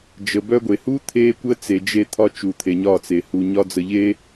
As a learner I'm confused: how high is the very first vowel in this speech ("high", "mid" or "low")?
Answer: mid